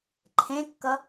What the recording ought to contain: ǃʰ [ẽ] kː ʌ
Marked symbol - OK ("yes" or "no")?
yes